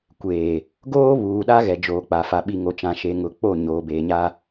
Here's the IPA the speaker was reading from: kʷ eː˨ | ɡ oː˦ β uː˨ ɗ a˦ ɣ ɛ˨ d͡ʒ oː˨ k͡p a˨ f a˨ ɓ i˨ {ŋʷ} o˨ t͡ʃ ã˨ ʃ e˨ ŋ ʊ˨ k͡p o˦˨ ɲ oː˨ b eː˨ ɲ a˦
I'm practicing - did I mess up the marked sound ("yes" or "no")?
yes